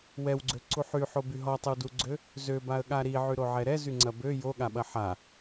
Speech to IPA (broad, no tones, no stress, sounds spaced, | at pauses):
w ɛ w ɡ͡ǀ ø ǀ u ħ y ħ o b y ɦ ɔ tˤ ɪ w d u ɡ͡ǀ ø | z ø b a ə̯ ɠ a ɾ i ʕ y ɾ o ʕ ɛ ɾ ɛ z y ŋ͡ǀ ɐ b ø j o ɠ a ɓ ɐ ħ a